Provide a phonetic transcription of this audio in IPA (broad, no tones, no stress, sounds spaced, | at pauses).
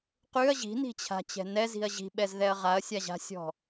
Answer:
q ʉ ɐ̯ ʑ i̤ n i̤ t͡ɕʰ a̤ t͡ɕ ɛ̤ n ɛ z i̤ ɐ̯ ʑ i̤ ɓ ɛ z ð ɛ ɐ̯ ʁ a ɐ̯ sʲ a ʑ a̤ sʲ ɔ̤